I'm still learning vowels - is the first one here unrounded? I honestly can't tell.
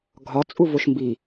no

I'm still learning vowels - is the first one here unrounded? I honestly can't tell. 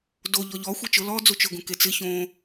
no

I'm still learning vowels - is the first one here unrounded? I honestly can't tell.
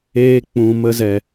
yes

